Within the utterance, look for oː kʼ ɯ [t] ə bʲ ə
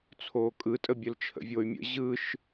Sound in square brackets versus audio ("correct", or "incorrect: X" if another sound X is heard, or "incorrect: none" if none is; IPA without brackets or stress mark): incorrect: tʼ